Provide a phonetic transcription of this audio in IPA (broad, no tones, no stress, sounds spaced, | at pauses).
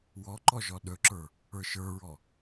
w ɔ ǃ ɔ ʒ ɔ ɗ ɵ ǁ ə˞ | ə˞ ʃ ə˞ ɹ ɔ